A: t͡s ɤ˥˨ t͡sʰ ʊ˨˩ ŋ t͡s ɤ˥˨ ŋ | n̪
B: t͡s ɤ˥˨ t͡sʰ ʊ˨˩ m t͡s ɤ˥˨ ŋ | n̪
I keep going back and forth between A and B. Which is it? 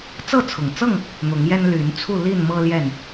A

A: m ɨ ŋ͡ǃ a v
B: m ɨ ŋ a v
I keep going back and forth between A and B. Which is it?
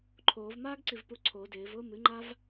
A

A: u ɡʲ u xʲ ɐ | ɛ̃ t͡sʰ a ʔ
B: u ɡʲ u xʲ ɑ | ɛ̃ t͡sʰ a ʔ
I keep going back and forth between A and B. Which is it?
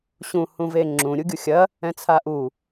A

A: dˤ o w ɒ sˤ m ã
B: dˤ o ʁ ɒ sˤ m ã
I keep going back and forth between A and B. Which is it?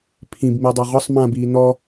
B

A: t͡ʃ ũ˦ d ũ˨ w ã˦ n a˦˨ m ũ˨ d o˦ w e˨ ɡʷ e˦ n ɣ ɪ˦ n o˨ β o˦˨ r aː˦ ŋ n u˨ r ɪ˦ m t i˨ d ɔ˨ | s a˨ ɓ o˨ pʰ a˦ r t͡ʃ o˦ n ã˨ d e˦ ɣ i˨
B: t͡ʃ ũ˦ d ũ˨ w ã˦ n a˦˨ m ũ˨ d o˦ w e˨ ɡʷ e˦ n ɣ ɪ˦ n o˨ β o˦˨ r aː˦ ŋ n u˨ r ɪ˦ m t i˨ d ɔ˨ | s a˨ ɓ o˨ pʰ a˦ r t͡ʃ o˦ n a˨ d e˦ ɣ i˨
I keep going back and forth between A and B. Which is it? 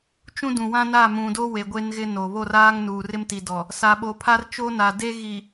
B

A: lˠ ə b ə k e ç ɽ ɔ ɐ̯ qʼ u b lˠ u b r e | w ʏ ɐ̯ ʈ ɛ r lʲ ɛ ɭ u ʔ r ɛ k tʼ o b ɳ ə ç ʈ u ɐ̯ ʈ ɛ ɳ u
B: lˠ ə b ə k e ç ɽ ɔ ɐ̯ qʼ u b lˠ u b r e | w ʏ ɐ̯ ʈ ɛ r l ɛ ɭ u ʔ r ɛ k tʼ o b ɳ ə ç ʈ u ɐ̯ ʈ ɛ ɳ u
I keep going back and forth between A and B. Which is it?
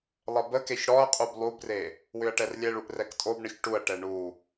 A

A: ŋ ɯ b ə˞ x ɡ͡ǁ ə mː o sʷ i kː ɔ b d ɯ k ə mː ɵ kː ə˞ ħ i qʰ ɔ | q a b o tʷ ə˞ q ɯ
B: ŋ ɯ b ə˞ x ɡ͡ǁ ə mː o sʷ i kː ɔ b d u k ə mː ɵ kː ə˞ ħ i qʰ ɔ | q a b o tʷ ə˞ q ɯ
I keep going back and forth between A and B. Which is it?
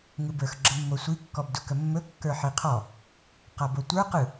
B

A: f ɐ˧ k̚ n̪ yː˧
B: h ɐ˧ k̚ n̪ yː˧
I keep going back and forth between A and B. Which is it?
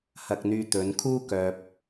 B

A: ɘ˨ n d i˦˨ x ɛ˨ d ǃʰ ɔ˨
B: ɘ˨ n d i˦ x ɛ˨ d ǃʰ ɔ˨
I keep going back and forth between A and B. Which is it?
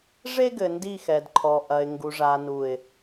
A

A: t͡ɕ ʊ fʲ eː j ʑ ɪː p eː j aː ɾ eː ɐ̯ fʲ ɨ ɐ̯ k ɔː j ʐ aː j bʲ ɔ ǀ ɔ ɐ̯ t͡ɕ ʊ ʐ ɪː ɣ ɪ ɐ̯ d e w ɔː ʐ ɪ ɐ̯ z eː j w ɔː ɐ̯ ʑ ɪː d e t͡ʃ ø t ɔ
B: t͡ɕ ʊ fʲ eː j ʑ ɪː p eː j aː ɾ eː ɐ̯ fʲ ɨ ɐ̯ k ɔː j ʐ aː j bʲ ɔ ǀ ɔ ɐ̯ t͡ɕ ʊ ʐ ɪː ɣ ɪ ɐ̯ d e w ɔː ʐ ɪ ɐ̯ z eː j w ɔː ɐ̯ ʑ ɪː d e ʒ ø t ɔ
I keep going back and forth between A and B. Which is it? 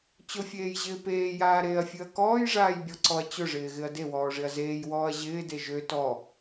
B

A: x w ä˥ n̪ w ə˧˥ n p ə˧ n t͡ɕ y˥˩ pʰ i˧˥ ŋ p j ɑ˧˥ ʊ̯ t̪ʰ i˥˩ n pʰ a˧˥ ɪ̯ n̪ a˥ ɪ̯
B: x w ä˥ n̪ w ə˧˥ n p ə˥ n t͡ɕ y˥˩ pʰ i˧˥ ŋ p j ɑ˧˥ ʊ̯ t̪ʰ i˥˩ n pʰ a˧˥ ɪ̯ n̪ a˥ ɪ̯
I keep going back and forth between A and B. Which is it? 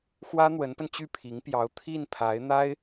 A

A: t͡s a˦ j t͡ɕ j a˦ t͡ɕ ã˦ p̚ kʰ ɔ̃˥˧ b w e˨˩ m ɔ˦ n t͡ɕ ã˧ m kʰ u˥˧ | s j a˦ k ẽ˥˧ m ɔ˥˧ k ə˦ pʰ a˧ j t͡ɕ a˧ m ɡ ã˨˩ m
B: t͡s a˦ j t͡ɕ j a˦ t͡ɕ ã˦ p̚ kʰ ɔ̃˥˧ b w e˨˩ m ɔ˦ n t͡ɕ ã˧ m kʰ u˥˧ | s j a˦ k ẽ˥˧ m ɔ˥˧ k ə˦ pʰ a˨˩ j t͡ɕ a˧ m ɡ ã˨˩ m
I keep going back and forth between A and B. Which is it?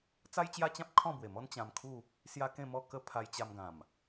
A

